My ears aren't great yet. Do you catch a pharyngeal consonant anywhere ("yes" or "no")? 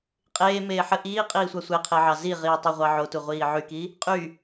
yes